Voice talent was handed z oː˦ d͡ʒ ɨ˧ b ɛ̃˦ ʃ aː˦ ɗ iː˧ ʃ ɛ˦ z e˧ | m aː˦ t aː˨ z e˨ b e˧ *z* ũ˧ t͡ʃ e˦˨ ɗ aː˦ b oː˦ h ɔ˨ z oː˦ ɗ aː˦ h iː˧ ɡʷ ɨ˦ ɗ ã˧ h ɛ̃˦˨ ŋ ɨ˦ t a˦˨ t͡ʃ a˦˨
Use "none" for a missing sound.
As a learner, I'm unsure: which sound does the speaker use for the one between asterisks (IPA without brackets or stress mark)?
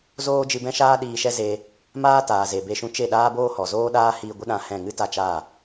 ʃ